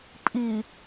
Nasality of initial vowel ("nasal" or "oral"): oral